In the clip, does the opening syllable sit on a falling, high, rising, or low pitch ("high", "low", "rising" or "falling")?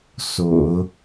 low